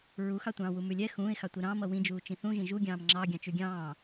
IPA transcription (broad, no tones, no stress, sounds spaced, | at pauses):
ɹ u x ɑ tʷ ɑ̃ː w u m ʉ lʲ ɛ x ũː ɪ̯ x ɑ tʷ i ɾ ɑ̃ː m ʌ w ĩ d͡ʒ uː t͡ʃ ĩ θ ũ ʒ ĩ ʒ u ɡʲ ɑ̃ː m ŋ͡ǁ ɑ ɡʲ ɑ̃ t͡ʃ ʉ ɡʲ ɑ̃ː